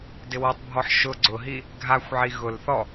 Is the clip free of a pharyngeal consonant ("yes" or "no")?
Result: no